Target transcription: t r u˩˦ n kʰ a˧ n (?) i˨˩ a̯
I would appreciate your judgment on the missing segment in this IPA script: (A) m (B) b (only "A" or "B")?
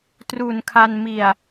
A